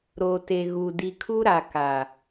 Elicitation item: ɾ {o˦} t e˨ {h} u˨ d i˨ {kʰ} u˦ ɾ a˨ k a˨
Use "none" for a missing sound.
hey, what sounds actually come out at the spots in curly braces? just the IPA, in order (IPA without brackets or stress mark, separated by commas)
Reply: o˨, ɣ, kʰ